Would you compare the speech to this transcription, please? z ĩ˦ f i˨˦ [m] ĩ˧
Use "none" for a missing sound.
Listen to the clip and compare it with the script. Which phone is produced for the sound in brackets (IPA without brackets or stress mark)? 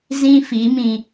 m